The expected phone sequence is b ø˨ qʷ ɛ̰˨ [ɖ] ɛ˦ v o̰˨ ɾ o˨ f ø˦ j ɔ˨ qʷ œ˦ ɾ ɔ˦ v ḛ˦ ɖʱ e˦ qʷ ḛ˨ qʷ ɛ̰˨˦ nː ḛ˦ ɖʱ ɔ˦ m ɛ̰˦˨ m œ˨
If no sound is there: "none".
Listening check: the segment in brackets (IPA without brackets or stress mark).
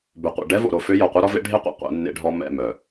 ɖ